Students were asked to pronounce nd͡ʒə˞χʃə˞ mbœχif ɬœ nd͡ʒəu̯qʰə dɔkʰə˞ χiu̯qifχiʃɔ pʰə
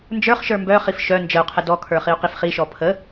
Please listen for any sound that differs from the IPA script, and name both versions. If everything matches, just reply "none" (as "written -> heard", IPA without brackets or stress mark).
ɬ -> ʃ